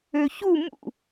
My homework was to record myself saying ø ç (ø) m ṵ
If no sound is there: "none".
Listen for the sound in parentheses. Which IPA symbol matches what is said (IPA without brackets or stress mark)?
u